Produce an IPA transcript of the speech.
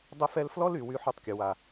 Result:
dˤ ə˦ f ɛ˦ l f l ɔ˦ l y˨ w y˦ ħ u˦ tˤ kʲ ʊ˨ w a˨

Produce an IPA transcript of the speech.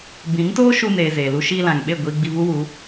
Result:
b ĩ˨˦ ŋ t oː˦ ʃ u˧ n eː˨ z eː˨ l u˧ ʃ iː˧ l ã˨ ŋ ɓ e˦˨ ɡʷ iː˧ ɡ͡b i˧ v u˦ w u˨˦

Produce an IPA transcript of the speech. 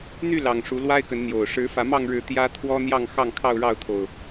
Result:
n̪ y˥˨ l ɑ˨˩ ŋ ʂ u˨˦ l w a˦ ɪ̯ k ə˨˦ n n̪ j o˨˩ ʊ̯ ʂ ɻ̩˨˦ f ä˨˦ m ɑ˥˨ ŋ ɻ ɻ̩˨˦ t̪ j ä˦ t̪ʰ w ɔ˦ n̪ j ɑ˥˨ ŋ x ɑ˥˨ ŋ kʰ ɑ˥˨ ʊ̯ ɻ ɑ˥˨ ʊ̯ t̪ʰ o˨˩ ʊ̯

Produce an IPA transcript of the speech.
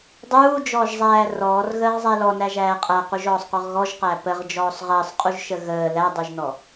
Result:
dˤ uː d͡ʒ ɔː ʒ zˤ æː r ɔː r ɣ əː ʁ zˤ æ l ɔ n æ ʒ æː qʼ æ q u ʒ ɔː sˤ q ɔ ʁ ɣ ɔ ʒ q æ p ə ʁ d͡ʒ ɔː sˤ ʁ əː sˤ qʼ u ʒ ʃ ə ɣ əː l æ dˤ u ʒ n ɔ

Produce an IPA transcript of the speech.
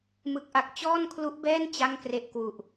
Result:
m ɯ˦˥ k̚ ʔ a˦˥ k̚ t͡ɕ ɔː˥˩ n kʰ l u˦˥ ʔ b ɛː˥˩ n t͡ɕ a˥˩ ŋ k r e˦˥ ʔ k w u˨˩ ʔ

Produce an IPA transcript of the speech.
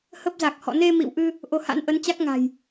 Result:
h ə˦˥ p̚ z a˨˩ k̚ h ɔ̰˧˨ n e˧ m ḭ˧˨ w ʔ ɨ˧ | ʔ o˧ h a̰˧˥ n ʔ ə˨˦ n t͡ɕ a˦˥ k̚ ŋ a̤˨˩ j

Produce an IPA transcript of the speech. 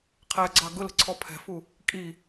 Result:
qʰ æ ɡ͡ǀ ɑ ɡ ʊ l ə̤ ǀʰ ɔ pʰ ɛ̤ f u | kʼ i

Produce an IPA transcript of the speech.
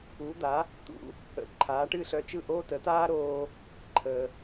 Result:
u˩˥ d̪ a˩˥ | t̪ ṵ˧ | ə̰˩ ǃʰ aː˩˥ ʈ ɨ˥˩ ɬ œ˧ t͡ʃ ɯ˥˩ ʔ oː˥ t ə˩˥ t aː˥ ɾ oː˧ | ǃʰ əː˩

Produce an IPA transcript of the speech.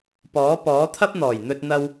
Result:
p ɔː˨˥ p ɔː˨˥ t̪ʰ ɐ˥ p̚ n̪ ɔː˨˩ j n̪ ɵ˧ t̚ n̪ ɐ˧ w

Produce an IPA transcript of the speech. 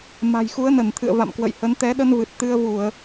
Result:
m a̤˨˩ j x u˨˦ ə̯ n ə˧˩ n t̪ʰ ɨ̰˧˨ ə̯ v a̰˧˨ m k w ə̰˧˨ j h ə˨˦ n t̪ ɛ˨˦ ɗ ə˧ n v ɨ˨˩ t̚ t̪ ɨ˧ ə̯ v u˧˩˨ ə̯

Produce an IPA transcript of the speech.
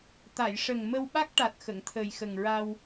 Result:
t̪ a˨˩˨ j ʂ ə˨˩ ŋ m ə˧ w ɓ a˦˥ k̚ ʈ a˨˩ t̚ x ə˨˩˨ ŋ t̪ʰ əː˨˩ j x ə˨˩ ŋ ɹ a˧ w

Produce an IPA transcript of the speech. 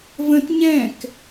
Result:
v ə̃ t ɲ ɛ̃ k

